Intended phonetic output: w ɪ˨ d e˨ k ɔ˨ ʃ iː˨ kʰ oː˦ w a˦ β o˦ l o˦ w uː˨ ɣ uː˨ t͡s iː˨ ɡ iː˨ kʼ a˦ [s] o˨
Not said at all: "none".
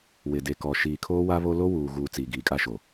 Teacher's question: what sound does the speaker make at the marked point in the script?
ʃ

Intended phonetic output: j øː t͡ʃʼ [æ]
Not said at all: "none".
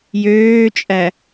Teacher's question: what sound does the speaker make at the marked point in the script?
æ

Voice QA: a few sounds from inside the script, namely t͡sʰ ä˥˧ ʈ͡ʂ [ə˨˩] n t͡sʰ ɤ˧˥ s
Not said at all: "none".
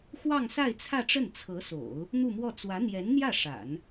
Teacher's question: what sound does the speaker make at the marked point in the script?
ə˥˩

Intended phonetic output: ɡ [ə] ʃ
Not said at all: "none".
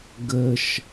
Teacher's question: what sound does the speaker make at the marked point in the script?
ə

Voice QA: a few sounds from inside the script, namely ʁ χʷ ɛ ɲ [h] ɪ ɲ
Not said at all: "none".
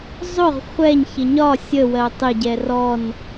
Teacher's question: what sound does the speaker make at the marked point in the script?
ç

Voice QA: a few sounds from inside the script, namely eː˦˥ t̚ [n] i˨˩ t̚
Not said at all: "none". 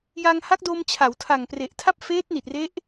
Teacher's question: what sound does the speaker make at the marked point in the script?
n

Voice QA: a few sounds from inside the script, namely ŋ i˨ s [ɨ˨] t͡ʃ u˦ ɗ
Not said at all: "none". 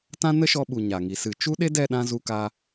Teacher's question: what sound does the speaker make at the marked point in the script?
ɨ˨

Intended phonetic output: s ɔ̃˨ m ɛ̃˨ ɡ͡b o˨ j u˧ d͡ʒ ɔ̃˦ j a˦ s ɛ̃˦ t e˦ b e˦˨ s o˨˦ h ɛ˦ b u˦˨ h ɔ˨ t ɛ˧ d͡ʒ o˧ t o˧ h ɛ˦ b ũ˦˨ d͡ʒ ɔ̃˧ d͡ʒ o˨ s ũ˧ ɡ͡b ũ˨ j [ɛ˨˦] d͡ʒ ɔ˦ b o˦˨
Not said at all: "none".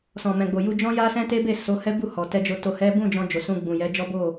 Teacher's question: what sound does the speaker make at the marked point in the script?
ɛ˨˦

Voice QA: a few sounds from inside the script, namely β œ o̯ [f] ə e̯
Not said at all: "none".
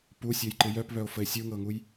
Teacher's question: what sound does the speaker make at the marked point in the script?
f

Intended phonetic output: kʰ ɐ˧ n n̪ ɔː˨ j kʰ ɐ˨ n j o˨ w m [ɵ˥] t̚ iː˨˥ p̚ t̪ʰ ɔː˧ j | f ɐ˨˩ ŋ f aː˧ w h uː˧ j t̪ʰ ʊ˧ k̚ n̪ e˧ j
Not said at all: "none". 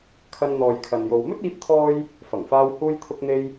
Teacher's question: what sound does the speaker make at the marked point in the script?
ɵ˥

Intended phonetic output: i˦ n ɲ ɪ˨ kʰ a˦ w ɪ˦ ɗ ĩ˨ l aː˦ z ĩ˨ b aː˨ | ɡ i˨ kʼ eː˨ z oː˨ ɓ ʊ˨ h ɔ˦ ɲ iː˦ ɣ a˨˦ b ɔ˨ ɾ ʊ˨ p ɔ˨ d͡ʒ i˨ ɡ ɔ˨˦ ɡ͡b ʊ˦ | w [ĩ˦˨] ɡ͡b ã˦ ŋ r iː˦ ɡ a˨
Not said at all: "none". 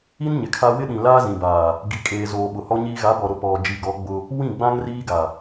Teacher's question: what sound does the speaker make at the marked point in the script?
ĩ˦˨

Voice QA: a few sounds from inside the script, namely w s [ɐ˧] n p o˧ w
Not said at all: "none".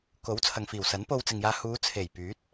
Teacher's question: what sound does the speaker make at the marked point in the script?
ɐ˨˥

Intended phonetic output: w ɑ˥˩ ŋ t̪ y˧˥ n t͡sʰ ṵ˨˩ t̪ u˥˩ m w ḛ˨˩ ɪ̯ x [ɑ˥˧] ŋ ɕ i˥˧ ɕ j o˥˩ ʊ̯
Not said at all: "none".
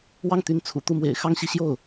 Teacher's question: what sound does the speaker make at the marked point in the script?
ɑ˥˧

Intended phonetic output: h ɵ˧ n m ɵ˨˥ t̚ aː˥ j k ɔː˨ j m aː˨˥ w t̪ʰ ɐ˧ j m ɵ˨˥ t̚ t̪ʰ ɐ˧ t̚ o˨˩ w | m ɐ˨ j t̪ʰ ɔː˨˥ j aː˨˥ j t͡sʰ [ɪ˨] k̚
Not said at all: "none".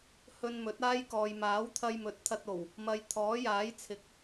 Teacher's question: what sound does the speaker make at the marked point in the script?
ɪ˨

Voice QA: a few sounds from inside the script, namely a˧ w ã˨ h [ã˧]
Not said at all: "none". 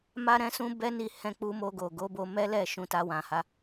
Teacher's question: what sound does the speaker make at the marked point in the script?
a˧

